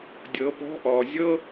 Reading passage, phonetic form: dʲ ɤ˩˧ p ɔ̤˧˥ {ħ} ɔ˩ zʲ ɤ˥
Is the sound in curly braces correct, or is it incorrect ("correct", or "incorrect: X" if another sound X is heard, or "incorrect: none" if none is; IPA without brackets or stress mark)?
incorrect: ʔ